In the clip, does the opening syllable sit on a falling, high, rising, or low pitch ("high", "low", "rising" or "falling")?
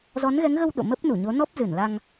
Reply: rising